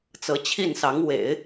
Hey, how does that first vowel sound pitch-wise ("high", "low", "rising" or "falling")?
rising